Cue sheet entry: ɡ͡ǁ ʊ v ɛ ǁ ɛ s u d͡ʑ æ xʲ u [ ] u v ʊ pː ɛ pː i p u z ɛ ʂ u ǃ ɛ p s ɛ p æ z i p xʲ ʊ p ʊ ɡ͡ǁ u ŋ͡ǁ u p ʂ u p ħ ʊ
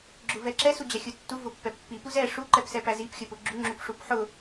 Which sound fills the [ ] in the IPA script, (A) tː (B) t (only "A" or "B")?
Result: A